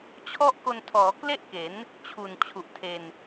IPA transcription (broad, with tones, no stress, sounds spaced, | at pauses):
t͡ɕʰ ɔ˥˩ ʔ k o˧ n tʰ ɔː˩˦ k l e˥˩ ʔ k e˩˦ n | t͡ɕʰ u˨˩ n t͡ɕʰ u˨˩ ʔ tʰ e˧ n